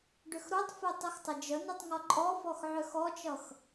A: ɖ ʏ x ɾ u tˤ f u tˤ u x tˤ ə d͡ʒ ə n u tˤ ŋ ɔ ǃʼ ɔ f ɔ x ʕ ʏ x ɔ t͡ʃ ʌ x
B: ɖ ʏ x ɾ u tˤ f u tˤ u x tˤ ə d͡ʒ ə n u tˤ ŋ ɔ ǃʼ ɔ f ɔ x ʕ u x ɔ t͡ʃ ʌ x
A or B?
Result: A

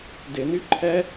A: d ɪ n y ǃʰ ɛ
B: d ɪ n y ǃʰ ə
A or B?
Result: A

